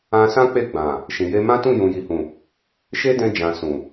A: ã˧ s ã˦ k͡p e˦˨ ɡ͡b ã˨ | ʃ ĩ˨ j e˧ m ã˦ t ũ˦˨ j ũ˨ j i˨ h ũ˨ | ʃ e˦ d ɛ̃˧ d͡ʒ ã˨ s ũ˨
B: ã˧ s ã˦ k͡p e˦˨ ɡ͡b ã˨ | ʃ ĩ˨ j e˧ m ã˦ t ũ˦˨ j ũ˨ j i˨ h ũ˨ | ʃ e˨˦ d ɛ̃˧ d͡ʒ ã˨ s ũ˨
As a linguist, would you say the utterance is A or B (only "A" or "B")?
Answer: A